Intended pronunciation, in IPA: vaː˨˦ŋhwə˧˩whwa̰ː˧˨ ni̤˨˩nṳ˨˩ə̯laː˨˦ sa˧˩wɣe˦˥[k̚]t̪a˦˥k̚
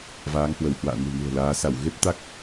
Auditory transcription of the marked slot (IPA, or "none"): p̚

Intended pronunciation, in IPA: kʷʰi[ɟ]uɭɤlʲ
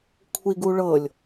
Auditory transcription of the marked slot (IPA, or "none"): ɡ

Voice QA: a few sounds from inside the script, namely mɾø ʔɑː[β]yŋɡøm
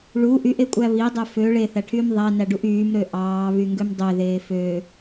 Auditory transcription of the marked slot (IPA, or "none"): β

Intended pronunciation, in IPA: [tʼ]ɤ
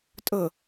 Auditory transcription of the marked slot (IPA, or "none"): tʼ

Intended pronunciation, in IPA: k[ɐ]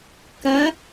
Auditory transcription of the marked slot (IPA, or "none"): ɐ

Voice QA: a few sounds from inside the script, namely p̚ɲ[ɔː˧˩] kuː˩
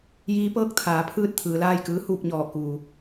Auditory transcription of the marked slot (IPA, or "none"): ɔː˧˩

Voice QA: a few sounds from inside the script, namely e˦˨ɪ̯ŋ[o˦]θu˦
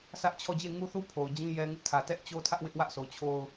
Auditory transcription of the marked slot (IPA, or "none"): u˦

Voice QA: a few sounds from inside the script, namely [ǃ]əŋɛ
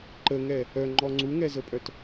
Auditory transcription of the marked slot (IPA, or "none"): ǃ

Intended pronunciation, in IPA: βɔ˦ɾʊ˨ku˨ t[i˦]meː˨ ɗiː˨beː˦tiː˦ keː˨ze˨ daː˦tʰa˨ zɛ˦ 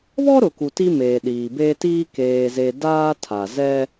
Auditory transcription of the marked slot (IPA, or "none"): i˦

